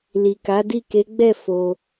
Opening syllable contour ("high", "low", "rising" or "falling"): low